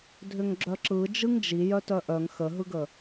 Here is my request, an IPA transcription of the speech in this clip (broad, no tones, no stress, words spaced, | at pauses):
dʱʏŋɡ͡ǁœǁɯ d͡ʒɯŋd͡ʒi jœtœʔœŋ xəɦɯɡə